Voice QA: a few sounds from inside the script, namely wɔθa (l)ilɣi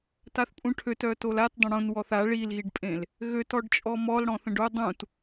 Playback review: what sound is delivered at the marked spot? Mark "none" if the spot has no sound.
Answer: ɭ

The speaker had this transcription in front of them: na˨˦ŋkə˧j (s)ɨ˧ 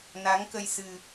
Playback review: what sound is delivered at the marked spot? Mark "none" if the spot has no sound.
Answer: s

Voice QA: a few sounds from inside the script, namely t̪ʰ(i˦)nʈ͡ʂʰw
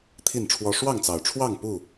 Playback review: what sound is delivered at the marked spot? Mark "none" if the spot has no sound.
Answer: i˥˨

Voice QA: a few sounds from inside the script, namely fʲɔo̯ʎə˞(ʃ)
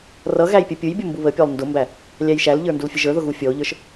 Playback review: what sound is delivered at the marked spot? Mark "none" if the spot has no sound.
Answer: ʃ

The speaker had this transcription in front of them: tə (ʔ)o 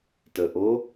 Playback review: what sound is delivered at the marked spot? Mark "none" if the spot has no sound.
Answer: ʔ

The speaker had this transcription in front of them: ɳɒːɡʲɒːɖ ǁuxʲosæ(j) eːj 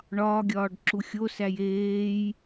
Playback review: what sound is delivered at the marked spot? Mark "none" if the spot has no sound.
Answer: j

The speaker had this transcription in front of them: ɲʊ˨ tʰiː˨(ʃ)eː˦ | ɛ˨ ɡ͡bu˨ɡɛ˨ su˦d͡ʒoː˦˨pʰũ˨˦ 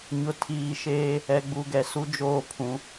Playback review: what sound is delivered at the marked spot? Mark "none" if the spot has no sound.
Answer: ʃ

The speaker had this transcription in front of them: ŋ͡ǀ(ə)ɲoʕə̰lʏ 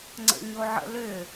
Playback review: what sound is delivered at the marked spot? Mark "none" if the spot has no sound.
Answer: ə̰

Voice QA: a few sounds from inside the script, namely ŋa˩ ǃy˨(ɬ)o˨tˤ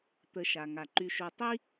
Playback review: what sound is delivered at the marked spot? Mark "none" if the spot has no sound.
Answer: ʃ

